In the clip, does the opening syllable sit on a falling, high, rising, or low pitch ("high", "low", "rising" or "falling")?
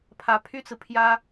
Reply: rising